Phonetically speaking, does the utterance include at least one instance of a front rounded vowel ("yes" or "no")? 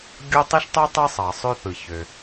yes